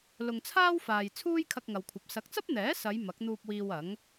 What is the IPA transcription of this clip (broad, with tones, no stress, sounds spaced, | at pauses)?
l ʊ˨ ŋ t͡sʰ aː˥ w f aː˨ j t͡sʰ uː˥ j kʰ ɐ˧ k̚ ŋ ɐ˨ w kʷʰ ɐ˨ p̚ s ɐ˨˥ k̚ t͡s ɐ˥ p̚ n̪ ɛː˨˥ s ɐ˨˧ j m ɐ˨˥ k̚ n̪ uː˧ p̚ w iː˧ w ɐ˨˥ ŋ